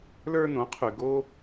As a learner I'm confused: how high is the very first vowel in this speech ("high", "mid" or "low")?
mid